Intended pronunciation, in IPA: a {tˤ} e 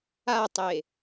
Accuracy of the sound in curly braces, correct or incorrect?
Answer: correct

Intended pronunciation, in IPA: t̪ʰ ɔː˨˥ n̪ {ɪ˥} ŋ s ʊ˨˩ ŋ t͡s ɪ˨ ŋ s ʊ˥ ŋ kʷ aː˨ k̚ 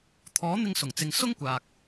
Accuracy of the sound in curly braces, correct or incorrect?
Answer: incorrect: ɪ˧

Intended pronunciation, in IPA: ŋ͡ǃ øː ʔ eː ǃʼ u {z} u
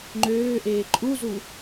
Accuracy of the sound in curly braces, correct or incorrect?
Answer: correct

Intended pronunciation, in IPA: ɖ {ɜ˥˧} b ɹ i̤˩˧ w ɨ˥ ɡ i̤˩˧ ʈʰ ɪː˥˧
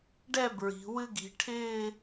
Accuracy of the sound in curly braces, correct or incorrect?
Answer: incorrect: ɛ˥˧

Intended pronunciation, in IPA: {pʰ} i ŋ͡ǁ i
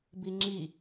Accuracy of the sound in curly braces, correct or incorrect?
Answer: incorrect: b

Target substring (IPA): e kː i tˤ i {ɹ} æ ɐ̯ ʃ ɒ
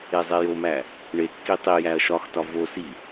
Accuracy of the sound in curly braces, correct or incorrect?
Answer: incorrect: j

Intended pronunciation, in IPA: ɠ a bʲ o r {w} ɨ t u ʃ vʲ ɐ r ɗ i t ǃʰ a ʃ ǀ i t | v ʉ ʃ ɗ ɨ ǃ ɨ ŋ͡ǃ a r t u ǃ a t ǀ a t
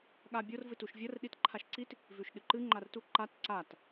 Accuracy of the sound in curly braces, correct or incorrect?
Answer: incorrect: v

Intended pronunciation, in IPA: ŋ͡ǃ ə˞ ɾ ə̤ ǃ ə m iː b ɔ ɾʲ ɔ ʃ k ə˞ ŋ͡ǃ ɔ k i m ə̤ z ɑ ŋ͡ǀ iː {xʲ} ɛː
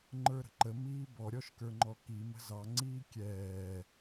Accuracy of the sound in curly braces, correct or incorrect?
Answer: incorrect: kʲ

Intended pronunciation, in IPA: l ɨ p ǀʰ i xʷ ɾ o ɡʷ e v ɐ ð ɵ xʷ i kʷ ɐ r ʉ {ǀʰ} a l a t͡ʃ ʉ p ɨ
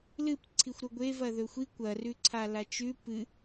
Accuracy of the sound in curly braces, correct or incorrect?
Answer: correct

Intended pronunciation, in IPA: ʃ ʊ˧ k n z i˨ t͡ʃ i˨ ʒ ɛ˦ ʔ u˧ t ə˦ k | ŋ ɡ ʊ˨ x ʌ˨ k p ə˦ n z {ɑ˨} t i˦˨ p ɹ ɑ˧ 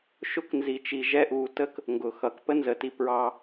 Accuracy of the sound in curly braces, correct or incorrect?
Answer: incorrect: ə˨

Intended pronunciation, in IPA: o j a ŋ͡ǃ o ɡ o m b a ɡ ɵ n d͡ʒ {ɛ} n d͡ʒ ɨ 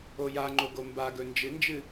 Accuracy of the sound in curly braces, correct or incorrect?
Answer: incorrect: ɨ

